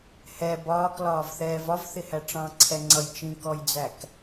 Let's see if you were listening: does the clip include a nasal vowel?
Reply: yes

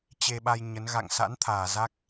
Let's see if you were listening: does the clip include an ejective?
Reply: no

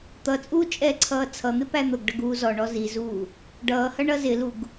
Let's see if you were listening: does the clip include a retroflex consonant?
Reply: yes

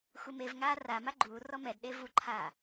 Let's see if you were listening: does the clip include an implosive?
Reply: yes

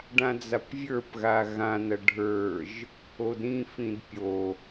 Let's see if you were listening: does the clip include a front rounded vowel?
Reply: no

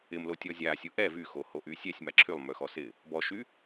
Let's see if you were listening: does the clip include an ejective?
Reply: no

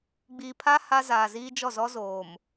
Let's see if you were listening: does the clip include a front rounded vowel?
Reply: no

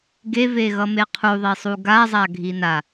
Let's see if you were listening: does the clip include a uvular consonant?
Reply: yes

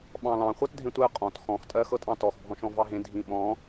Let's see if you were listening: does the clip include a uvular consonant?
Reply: yes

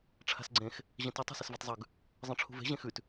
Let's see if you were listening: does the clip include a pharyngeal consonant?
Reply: no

